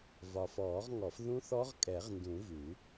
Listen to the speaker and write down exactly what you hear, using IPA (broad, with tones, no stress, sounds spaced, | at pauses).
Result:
v ɒ˨ f ɔː˨˩˦ ʁ ŋ ɔ˨˩˦ f ð ũ˦˥ θ ɔ˦˥ ʁ kʼ ɛ˨˩˦ ʁ n d ũ˨˩˦ v ʉ˨˩˦